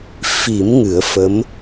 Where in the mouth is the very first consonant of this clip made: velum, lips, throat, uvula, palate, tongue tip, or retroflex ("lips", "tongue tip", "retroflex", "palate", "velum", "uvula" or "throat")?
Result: lips